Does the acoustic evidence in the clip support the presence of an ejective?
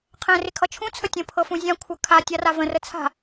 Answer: no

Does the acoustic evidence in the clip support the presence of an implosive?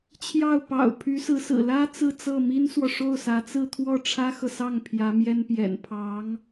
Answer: no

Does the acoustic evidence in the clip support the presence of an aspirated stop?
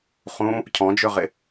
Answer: yes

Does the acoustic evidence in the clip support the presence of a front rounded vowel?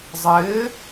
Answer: no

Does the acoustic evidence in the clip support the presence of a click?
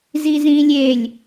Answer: no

